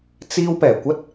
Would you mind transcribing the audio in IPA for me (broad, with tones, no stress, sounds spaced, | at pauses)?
t͡s iː˧ w p ɛː˨˩ kʷ ɐ˥ t̚